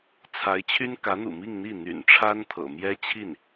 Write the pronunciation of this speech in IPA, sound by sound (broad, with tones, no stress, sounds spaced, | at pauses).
t͡sʰ a˧˥ ɪ̯ t͡ɕʰ y˥ n k ä˧˥ n̪ ṵ˨˩ m i˥˧ ŋ n̪ i˥˩ n̪ y̰˨˩ n ʈ͡ʂʰ a˥ n t̪ʰ ɤ̰˨˩ m j ɛ˥ t͡ɕʰ i˥˩ n